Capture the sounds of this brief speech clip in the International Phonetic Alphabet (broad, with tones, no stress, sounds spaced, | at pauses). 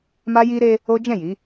m a˦ j i˦ ɾ e˦ | o˦ d͡ʒ ɛ̃˦˨ j i˨˦